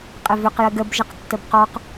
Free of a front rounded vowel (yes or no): no